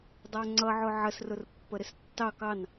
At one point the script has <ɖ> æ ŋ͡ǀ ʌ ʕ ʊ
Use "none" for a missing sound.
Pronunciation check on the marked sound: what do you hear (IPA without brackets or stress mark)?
dˤ